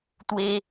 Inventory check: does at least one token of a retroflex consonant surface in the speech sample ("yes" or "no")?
no